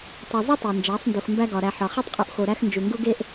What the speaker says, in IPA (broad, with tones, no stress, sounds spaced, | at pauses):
tˤ i˨ zˤ u˦ tˤ e˨ n d͡ʒ æ˨˦ sˤ n d u˨ x m b æ˦ ɡ ɒ˨ ɾ æ˨ ħ ɒ˨ χ e˦ tˤ qʼ u˨ ʔ x o˨ ɾ æ˦ x n d͡ʒ u˨ ŋ ɡ u˦ ɡ e˦ ʔ